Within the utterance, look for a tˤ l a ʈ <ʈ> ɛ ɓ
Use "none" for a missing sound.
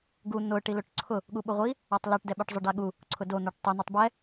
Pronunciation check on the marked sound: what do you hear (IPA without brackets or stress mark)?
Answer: d